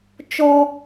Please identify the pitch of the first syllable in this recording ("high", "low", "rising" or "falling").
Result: high